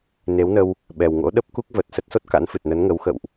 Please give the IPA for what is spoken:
n e˨˦ w n ə˧ w | ɓ ɛ˨˩ w ŋ o̰˧˥ ɗ ə˦˥ p̚ k u˦˥ k̚ v ə˨˩ t̚ s ə˦˥ t̚ s o˦˥ t̚ k a̰˧˥ n f ɨ˨˩ t̚ n ə˨˦ n ŋ ə˨˦ w x ə̰˧˨ w ʔ

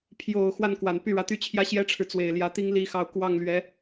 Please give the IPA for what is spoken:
pʰ j o˨˩ ʊ̯ x w a˥˩ n k w a˨˩ n p y˥˩ ɻ ä˧˥ t̪ y˥˩ t͡ɕʰ j ä˥ ɕ j ɛ˥ ʈ͡ʂʰ ɻ̩˨ t͡s w e˨˩ ɪ̯ l j ä˧˥ t̪ i˥ ŋ l i˥˧ x ɑ˥˧ ʊ̯ k w ɑ˥˩ ŋ l ɥ ɛ˧˥

